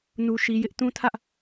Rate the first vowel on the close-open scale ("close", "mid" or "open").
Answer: close